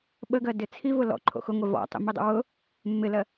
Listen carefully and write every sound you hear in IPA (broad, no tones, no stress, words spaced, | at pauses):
ɓəɡɜdɪ t͡sʰivʊ lɔ̰ǃʰo̰ xʊŋʷɛ vɔ̰tˤḭmidˤə̰ wʊ | mːɪlɜ